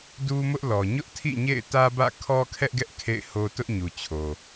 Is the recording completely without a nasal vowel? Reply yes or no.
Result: yes